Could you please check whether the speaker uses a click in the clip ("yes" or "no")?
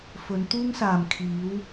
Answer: no